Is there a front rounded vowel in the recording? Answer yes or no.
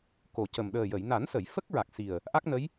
no